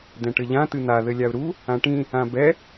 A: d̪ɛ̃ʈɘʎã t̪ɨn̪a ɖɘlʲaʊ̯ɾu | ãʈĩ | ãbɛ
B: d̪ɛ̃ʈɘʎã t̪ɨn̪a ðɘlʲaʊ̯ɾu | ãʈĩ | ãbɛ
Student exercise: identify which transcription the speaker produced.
B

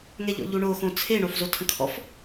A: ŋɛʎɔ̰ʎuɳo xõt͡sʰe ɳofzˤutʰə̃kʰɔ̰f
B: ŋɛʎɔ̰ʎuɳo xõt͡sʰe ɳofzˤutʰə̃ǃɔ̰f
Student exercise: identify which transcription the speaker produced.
A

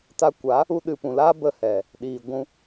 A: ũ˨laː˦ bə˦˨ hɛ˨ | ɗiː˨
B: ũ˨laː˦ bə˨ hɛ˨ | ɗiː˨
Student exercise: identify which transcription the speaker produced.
A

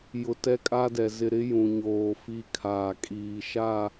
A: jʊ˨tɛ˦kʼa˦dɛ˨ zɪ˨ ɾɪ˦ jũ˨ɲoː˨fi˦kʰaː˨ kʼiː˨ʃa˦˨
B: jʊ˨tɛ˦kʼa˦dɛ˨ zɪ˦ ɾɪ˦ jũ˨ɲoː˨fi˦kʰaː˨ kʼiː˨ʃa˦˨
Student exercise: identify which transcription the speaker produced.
A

